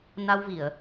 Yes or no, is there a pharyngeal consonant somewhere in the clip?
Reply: no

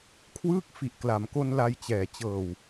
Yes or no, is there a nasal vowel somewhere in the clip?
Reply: no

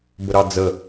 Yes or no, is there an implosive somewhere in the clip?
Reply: no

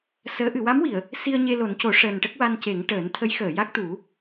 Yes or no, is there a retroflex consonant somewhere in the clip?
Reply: yes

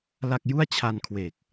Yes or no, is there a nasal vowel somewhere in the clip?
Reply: no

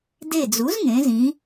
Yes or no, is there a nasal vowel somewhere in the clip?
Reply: yes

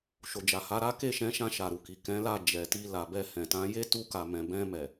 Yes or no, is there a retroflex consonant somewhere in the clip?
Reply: no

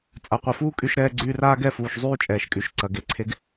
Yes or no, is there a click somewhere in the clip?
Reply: yes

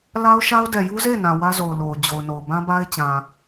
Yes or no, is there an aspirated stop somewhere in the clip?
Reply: no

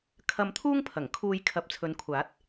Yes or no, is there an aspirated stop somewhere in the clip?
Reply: yes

